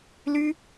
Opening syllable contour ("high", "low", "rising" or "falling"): high